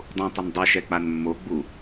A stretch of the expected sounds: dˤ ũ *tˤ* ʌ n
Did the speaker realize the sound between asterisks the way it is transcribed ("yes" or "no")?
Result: yes